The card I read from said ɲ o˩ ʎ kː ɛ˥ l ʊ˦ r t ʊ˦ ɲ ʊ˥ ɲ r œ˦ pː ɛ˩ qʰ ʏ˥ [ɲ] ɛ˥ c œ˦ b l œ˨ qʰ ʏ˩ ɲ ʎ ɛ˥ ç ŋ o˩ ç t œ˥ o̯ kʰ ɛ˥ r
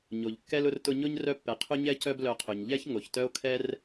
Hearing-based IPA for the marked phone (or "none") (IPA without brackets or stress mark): ɲ